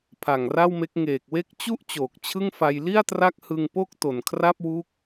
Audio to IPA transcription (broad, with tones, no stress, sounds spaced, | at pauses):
pʰ a˨˩ ŋ r a˥˩ w m e˦˥ k̚ ŋ eː˨˩ k̚ w e˦˥ k̚ t͡ɕ u˥˩ ʔ t͡ɕ oː˨˩ k̚ t͡ɕʰ ɯ˥˩ ŋ f a˧ j l i˥˩ a̯ t r a˦˥ k̚ h ɯ˧ ŋ p o˥˩ k̚ t o˨˩ n kʰ r a˥˩ p̚ w u˦˥ k̚